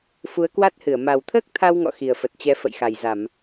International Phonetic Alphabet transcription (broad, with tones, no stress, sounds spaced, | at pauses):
f u˨˦ ə̯ k w a˦˥ t̚ h ɨ˧˩ ə̯ m a˨˩ w t̪ʰ əː˦˥ k̚ t̪ʰ a˧ w ŋ ɔ̰˧˨ x i˨˩ ə̯ f ə˨˩ t̚ t͡ɕ ɛ˨˦ f ə̰˧˨ j x a˨˩ j z a˧˩˨ m